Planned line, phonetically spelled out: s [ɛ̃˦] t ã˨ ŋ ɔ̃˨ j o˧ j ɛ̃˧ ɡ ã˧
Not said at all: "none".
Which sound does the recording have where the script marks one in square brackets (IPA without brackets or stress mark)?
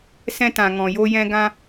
ɛ̃˧